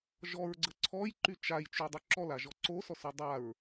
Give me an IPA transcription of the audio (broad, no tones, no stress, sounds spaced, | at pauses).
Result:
ʒ ɔ ɹ ɡ͡ǀ ə ǀʰ ɔ j ǃ y t͡ʃ a j t͡ʃ y dˤ ʏ ǁ ɔ l a ʒ ɔ ǀ o s ɔ s y dˤ a ɹ